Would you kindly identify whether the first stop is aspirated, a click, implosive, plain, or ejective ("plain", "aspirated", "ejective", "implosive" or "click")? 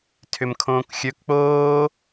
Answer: aspirated